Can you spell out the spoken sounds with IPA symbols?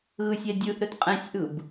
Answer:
ɣ ɯ sʲ ɛ dʲ ɯ ʔ ɾ ɵ t qʼ ɛ̃ sʲ ʔ ɯ b

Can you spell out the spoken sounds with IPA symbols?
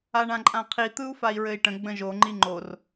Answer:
a ɳ ã ǃʼ ã qʰ i t̪ ɯ u̯ f a i̯ ɹ ɘ i̯ ʈ ə̃ ɡ͡b ə̃ ʒ o ŋ͡ǃ i ŋ͡ǃ o r

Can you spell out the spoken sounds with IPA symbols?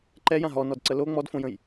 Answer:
ǃ ɛ j ã ɦ ɔ n ɔ d ǀ ə l o ŋ͡m ɔ d f õ j ə̃ j

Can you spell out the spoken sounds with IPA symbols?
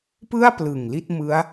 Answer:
p ɯ˥˩ a̯ p l ɯ˨˩ ŋ l i˥˩ t̚ m ɯ˦˥ a̯

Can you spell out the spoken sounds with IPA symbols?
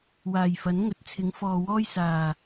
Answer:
w aː˨˩ j f ɐ˨˥ n ŋ ɵ˨˥ t̚ t͡sʰ ɪ˨˥ ŋ f ɔː˨ w ɔː˥ j s aː˨˩

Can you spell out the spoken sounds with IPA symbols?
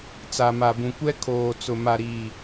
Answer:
t͡s a˨ m a˨ b ũ˨ kʷ ɛ˦ kʰ oː˨ t͡s ʊ˨ m a˨ ɾ iː˨

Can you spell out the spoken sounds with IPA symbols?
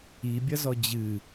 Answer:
i bʲ ɐ z ɔ d͡ʑ ɨ

